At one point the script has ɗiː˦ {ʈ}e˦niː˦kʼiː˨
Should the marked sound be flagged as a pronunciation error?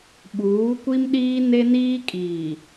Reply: yes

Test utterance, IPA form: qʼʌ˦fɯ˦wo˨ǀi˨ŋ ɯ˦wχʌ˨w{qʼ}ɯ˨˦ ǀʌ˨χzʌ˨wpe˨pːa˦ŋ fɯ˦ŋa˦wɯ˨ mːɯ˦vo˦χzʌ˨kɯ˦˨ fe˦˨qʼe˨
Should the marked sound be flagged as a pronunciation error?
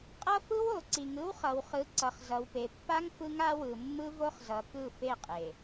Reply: yes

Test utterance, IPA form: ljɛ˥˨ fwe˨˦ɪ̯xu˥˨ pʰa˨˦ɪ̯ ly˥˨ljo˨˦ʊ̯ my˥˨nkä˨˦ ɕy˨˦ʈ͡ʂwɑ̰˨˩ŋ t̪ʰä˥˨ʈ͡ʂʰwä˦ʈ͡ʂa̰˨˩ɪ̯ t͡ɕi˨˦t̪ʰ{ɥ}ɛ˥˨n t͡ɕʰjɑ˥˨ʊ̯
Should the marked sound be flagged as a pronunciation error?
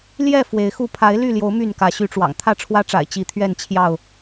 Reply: no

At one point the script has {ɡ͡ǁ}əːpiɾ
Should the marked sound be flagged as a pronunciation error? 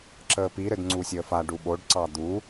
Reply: yes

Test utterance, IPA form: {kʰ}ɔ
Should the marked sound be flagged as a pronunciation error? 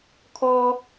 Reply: no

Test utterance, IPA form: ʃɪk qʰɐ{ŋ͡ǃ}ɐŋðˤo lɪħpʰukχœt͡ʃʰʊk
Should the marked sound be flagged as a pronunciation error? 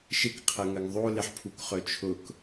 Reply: yes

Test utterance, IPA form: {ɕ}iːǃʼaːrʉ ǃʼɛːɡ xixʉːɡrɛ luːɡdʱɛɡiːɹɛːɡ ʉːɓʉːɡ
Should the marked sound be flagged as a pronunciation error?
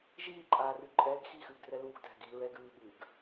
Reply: yes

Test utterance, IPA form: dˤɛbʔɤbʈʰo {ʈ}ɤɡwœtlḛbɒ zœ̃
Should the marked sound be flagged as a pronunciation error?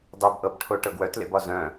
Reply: no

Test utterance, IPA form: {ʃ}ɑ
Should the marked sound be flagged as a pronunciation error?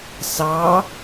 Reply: yes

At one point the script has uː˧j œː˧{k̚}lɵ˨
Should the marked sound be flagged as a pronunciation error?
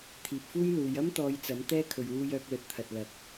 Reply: no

